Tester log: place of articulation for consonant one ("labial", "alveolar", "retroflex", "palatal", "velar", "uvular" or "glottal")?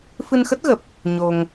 labial